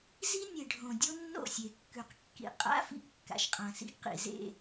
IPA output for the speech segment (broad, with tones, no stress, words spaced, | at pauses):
zi˦nʲe˨ɖʱõ˨ dʲo˦nːo̰˦˨sʲe˨kːʉ˨q kːḭ˨ qʼa̰˦fḭ˦ɡ kːa̰˨ʃqʼã˨sḭ˦ɡ qḭ˨zḛ˦˨